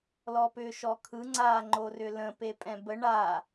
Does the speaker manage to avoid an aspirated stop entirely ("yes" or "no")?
no